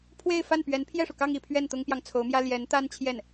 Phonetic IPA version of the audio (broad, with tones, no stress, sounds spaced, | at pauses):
pʰ w e˥˧ ɪ̯ f a˥˩ n p ɥ ɛ˧˥ n pʰ j ɛ˥˩ ʂ u˩ k ɑ˥˧ ŋ i˥˧ pʰ ɥ ɛ˥˩ n t̪ ʊ˥ ŋ p j ɑ˨ ŋ t͡sʰ o˧˥ ʊ̯ m j ä˥ l j ɛ˧˥ n t̪ a˥ n t͡ɕʰ j ɛ˥˩ n